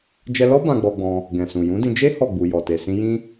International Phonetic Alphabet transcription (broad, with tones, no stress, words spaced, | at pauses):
d͡ʒɛ˧lɔ˦ bã˧ɡ͡bɔ˧ɡ͡bɔ̃˧ | ɡɛ̃˨sũ˨ jũ˨˦dĩ˧ d͡ʒe˦ hɔ˦˨ɡ͡bu˨ jɔ˨te˨ sĩ˧jĩ˦